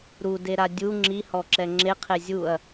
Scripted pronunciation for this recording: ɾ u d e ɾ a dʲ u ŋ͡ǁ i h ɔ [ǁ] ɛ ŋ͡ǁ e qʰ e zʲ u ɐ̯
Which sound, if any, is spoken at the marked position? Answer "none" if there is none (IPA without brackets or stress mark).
ǁ